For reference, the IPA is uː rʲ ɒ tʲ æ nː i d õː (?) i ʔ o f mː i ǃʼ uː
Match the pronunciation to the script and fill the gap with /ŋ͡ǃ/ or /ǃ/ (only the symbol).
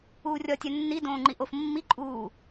ŋ͡ǃ